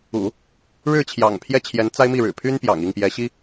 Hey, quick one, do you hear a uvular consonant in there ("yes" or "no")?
no